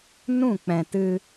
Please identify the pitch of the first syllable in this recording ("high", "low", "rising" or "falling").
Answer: falling